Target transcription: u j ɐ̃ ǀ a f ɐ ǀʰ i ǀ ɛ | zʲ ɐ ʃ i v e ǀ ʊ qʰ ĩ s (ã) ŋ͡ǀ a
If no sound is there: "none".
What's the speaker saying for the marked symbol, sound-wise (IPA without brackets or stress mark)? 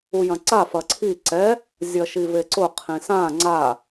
ã